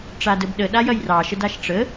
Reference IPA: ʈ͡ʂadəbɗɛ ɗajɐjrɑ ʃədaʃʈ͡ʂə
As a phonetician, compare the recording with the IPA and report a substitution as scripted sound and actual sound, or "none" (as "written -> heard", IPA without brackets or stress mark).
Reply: ɛ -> ə